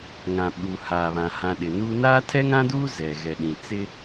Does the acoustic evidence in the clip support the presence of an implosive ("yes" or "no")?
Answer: yes